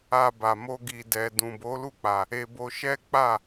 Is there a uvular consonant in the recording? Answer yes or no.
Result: no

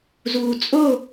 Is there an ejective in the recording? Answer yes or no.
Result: yes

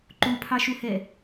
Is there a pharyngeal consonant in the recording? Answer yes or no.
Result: no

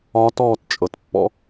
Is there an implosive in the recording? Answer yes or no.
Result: no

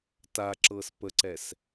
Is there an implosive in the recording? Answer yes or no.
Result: no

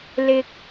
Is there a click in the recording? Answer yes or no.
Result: no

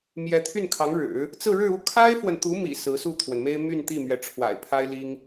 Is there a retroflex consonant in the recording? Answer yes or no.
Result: yes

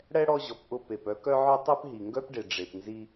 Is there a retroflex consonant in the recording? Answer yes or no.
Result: yes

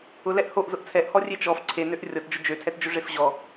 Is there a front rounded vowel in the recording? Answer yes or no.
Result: yes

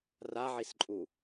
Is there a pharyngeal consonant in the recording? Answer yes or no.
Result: yes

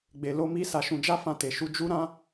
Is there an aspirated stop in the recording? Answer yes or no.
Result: no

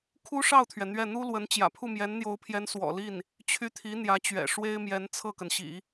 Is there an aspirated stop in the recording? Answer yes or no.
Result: yes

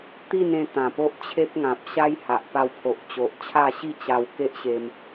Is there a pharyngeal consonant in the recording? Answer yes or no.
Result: no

